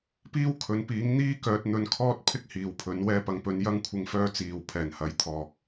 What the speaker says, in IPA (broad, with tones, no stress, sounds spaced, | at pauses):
p iː˥ w kʰ ɵ˨˥ n p iː˨˥ ŋ n̪ iː˥ k œː˧ t̚ n̪ ɵ˧ n kʰ ɔː˥ t̚ pʰ ɪ˥ k̚ h iː˨ w pʰ ɵ˨˥ n w ɛː˧ p ɐ˨ ŋ p ɵ˨˧ n j ɐ˥ ŋ kʷʰ ɪ˧ ŋ f œː˧ t͡s iː˨˩ w pʰ ɛː˨˩ n h ɐ˨˥ j t̪ʰ ɔː˨ k̚